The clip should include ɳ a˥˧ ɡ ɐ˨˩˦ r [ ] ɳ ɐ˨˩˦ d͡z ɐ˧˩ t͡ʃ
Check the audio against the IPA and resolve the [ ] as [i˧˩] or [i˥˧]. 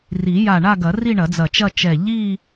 i˥˧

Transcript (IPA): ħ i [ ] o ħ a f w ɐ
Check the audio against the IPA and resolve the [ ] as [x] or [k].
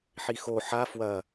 x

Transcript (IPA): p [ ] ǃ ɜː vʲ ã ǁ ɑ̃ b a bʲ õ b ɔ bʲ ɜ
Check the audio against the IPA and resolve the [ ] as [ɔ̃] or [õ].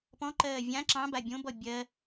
ɔ̃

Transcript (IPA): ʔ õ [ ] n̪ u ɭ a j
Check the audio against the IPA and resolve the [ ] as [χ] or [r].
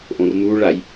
r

